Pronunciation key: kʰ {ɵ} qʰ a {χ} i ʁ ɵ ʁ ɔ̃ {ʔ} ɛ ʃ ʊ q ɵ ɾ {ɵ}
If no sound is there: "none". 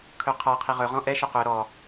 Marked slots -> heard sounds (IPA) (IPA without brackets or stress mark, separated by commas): ɵ, qʰ, ʔ, ɔ